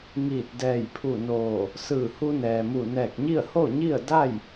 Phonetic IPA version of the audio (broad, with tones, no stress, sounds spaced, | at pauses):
ŋ iː˧˩ t̚ d ɛː˧˩ j pʰ u˧˩ n oː˧˩ | s ɯː˧˩ h u˧ n ɛː˩ m u˧˩ n ɛː˧˩ k̚ ɲ i˥˨ ə̯ h o˥˨ ɲ i˥˨ ə̯ d a˥˨ j